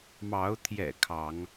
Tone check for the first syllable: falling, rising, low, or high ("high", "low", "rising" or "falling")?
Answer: rising